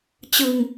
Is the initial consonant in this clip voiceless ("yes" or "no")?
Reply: yes